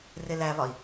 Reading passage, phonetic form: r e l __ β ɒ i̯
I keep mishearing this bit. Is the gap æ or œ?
æ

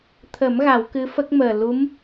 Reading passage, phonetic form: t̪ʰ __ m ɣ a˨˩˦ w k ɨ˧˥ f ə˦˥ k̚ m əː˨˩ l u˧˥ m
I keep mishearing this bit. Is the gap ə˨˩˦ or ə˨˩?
ə˨˩˦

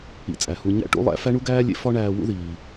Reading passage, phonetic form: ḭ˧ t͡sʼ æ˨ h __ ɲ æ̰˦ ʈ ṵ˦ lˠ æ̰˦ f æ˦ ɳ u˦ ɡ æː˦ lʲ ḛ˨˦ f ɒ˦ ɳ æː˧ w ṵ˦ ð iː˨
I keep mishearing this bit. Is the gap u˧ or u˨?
u˧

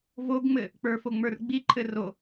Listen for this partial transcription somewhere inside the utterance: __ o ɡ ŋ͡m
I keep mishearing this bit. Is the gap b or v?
v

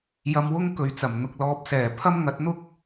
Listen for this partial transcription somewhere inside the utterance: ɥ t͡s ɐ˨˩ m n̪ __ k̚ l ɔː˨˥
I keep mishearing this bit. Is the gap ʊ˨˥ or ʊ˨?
ʊ˨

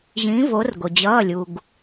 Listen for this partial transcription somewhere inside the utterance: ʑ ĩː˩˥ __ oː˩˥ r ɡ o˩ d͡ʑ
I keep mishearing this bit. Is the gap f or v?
v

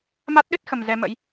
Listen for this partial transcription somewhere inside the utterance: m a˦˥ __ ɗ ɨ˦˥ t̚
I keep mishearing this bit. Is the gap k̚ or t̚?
t̚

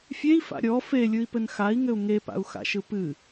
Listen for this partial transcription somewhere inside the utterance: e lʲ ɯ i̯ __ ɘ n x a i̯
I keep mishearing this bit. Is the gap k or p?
p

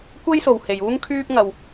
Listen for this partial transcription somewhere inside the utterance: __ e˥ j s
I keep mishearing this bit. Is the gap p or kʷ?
kʷ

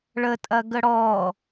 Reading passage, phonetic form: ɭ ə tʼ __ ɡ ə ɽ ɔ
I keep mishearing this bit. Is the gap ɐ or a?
ɐ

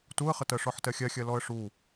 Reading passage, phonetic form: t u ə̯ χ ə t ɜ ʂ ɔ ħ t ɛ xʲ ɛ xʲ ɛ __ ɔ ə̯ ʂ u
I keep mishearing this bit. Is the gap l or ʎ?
l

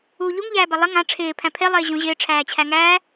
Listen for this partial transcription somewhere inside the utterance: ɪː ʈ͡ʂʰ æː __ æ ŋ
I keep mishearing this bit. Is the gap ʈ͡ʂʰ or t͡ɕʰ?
t͡ɕʰ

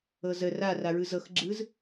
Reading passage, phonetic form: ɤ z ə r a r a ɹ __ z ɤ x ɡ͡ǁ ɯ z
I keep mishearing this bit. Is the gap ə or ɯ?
ɯ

